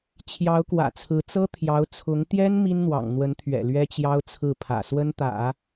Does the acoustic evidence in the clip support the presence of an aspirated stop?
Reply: yes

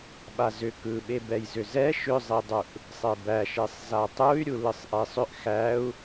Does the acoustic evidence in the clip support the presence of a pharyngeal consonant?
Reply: no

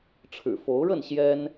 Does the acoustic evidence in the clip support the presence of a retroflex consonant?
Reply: yes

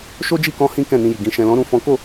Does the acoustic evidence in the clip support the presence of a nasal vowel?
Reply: yes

